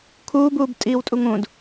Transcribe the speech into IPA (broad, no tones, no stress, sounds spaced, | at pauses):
kʰ uː b uː b tʼ iː w tʼ u ŋ ũ d